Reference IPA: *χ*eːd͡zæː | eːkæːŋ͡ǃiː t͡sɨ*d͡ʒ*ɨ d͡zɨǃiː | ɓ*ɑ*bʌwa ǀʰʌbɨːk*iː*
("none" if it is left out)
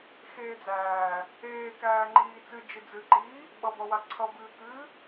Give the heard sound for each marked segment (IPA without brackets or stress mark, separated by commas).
x, d͡ʒ, ʌ, ɨː